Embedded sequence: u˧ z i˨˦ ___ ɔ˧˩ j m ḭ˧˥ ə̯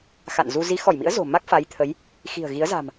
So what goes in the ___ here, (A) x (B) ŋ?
A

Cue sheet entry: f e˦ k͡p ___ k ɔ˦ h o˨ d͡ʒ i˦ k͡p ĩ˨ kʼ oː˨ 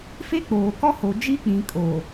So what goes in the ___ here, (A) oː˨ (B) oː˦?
A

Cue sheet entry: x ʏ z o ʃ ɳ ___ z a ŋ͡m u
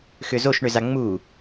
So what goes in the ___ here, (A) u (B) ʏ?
B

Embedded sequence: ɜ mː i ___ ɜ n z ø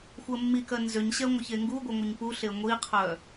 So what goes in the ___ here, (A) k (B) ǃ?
A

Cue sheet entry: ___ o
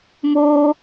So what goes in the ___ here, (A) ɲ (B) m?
B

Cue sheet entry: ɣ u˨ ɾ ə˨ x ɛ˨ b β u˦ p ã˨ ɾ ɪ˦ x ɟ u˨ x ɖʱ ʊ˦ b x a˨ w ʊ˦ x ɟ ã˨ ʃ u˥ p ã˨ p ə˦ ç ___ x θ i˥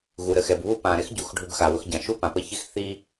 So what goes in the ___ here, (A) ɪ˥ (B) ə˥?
A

